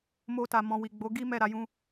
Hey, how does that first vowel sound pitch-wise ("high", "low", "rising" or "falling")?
high